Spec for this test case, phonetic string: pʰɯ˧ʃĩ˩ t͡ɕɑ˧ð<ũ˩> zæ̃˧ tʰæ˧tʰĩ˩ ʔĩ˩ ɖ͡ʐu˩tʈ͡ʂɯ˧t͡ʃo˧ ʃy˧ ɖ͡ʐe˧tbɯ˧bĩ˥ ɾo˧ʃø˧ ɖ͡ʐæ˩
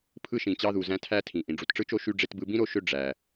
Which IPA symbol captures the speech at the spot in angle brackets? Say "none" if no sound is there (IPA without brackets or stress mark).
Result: u˩